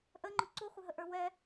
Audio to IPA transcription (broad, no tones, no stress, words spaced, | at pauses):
ʔə ŋ͡ǃʊǀuχʷɪɦə ʔə˞wɛ